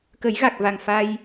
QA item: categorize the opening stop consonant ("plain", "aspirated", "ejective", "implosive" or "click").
plain